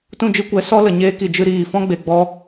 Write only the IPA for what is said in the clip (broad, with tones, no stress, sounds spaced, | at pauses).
t ũ˦˨ d͡ʒ ɨ˦ kʷ ɛ˨˦ s ɔ˦ l ə˨ ɲ eː˦ k i˨ d͡ʒ ɨ˧ ɾ iː˨ f ɔ̃˦ ɡ͡b e˨ ɡ͡b ɔ˧